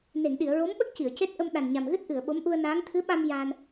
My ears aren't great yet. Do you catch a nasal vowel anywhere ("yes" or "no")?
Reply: no